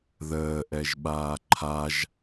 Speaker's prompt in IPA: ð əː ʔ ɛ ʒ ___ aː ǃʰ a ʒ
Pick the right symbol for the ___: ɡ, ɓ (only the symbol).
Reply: ɓ